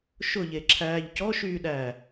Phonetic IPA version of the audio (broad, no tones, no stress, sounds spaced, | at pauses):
ʃ ʊ ʎ e ǁʰ æː ʎ c ɔ ʃ yː ɗ æː